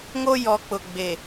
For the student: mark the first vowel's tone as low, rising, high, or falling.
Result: high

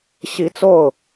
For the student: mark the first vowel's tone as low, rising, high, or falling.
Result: rising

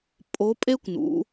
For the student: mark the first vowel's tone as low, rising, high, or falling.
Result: rising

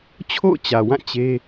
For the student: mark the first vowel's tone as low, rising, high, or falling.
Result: falling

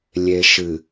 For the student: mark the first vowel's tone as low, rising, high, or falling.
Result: low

